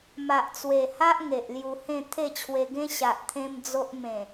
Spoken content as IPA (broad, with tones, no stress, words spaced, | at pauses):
ma˨ʔt͡swe˨˩ha˦ʔ ŋe˨ʔlju˧hẽ˥˧ t̪ʰe˥˧t͡ɕʰwe˧ɡẽ˦ ɕa˨ʔt̪ʰẽ˧m d͡zo˦ʔ mẽ˨˩